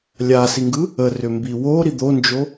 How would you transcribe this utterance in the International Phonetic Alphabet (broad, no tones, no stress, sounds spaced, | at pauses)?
lʲ a s i ŋ ɡ ɯ | ə r ʏ m b i w o ɾ i d̪ o n d͡ʒ o